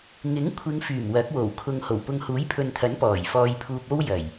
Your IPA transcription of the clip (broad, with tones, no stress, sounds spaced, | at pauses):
ŋ ɪ˨˥ ŋ kʷʰ ɪ˨˧ ŋ f yː˨˩ m w ɐ˨˥ k̚ w o˨˩ w kʰ ʊ˨ ŋ h o˨˩ w p ʊ˨ ŋ h uː˨˥ j pʰ ɵ˨ n t̪ʰ ɐ˨˥ n p ɔː˨˩ j f ɔː˧ j pʰ uː˧ p̚ o˥ w j ɐ˨˩ j